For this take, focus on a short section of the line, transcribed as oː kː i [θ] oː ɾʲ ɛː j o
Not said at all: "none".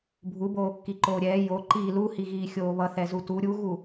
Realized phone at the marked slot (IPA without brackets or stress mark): ǃ